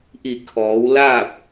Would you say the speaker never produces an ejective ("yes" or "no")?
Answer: yes